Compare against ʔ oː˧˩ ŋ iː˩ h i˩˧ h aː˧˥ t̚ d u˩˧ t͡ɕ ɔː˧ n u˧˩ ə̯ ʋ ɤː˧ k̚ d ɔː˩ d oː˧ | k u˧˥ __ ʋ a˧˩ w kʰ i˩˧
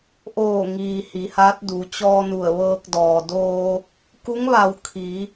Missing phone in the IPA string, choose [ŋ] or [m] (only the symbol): ŋ